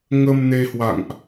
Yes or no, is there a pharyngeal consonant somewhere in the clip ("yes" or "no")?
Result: no